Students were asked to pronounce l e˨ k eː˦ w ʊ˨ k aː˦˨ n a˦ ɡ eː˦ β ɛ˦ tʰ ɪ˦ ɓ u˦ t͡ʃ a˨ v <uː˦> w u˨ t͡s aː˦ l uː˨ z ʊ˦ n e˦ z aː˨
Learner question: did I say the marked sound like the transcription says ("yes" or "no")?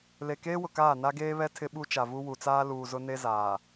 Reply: no